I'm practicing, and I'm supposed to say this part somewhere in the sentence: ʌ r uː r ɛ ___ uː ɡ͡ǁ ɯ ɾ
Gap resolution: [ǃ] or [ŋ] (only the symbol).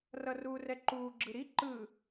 ǃ